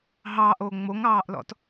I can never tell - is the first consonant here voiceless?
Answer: no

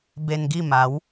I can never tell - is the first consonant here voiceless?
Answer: no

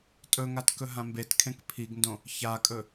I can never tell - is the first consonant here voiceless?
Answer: yes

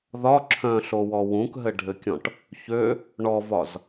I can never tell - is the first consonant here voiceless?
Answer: no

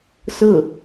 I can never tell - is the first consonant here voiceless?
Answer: yes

